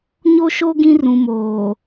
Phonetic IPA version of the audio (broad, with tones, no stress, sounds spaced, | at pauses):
ɲ o˦ ʃ o˦ ɡ ĩ˦ r ũ˨ m oː˨